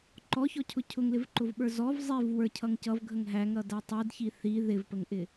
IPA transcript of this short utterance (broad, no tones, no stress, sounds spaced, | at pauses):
ǃ ɔ ç ɔ cʰ ʊ cʰ ʊ ŋ l ɪ v ǃ ʊ v ɓ ə˞ z ɔ v zˤ i v w ə˞ cʰ ʌ ŋ c ʌ v ɡʱ ə ŋ ɦ æ ŋ ɾ ʌ d æ tˤ i d ç i θ i ð ɪ v p ə ŋ ʔ ɪ